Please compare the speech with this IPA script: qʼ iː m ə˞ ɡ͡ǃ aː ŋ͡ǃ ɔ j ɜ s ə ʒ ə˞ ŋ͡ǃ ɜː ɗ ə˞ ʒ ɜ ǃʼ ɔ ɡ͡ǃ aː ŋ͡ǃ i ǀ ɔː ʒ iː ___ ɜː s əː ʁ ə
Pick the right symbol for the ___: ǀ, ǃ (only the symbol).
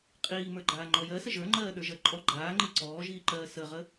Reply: ǃ